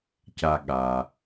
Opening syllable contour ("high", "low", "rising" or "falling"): low